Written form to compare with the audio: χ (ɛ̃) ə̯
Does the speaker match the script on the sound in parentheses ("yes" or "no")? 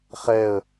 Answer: no